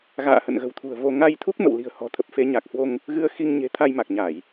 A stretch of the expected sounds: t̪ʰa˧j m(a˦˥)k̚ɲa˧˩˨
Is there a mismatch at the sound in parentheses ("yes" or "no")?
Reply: yes